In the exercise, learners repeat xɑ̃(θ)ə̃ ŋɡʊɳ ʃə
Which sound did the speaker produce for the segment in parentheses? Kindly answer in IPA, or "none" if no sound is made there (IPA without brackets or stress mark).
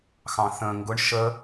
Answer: θ